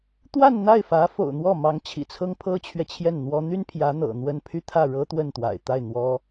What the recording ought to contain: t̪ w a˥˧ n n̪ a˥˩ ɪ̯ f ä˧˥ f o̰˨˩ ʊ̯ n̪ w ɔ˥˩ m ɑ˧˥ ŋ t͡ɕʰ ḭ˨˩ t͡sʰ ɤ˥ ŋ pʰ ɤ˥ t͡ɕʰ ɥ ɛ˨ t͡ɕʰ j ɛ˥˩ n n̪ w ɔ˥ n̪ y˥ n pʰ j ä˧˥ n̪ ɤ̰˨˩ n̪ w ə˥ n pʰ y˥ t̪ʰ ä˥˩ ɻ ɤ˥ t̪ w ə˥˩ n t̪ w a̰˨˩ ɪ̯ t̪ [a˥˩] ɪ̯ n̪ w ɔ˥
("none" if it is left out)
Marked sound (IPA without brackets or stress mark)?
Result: a˥˩